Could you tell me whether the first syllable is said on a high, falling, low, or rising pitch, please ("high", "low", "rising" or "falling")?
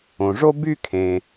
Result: low